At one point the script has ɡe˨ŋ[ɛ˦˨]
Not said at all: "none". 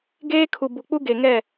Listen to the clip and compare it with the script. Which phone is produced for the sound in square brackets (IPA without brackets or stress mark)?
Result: ɛ˦˨